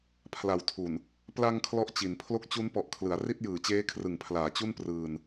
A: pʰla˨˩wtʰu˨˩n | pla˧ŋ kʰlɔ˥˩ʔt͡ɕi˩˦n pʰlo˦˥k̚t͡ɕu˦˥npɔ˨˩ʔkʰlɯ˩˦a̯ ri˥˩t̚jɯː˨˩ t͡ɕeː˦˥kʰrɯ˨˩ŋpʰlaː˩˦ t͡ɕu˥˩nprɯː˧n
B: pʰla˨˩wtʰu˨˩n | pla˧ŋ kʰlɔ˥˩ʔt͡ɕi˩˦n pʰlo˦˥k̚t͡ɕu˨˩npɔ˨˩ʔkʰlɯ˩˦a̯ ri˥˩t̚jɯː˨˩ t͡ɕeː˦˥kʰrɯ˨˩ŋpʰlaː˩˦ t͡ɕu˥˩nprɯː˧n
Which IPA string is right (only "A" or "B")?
A